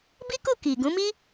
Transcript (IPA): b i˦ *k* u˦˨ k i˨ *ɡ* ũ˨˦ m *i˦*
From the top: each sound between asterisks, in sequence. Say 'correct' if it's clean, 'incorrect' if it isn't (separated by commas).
correct, correct, correct